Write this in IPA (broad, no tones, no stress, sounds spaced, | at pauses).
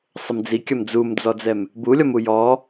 sˤ ɘ m d͡z i kʲ ɐ m d͡z u m d͡z ɔ d͡z ɛ m | b u lʲ ɔ m u j ɔ